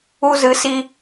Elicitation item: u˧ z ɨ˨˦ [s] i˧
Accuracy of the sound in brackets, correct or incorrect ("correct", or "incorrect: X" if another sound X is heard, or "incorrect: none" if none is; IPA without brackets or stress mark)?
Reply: correct